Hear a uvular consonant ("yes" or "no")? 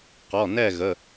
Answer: yes